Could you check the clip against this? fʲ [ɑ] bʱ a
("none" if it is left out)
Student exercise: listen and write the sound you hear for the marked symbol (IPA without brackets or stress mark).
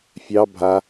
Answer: ɑ